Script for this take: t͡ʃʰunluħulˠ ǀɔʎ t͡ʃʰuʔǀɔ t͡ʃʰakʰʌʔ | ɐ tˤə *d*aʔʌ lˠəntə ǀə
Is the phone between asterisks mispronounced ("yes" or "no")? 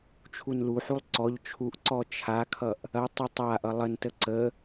yes